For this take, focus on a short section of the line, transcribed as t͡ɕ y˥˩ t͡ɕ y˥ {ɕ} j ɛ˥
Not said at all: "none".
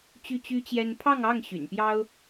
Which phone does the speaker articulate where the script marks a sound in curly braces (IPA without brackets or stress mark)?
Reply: t͡ɕ